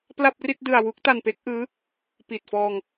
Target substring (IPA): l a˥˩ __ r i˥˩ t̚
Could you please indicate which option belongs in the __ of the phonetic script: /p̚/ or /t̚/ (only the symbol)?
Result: p̚